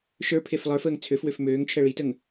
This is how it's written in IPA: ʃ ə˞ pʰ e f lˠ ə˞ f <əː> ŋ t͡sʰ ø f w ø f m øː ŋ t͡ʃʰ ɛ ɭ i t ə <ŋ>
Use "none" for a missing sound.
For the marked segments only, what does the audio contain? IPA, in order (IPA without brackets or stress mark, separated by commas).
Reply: əː, ŋ